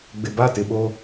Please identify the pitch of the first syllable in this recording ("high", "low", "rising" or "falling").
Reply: low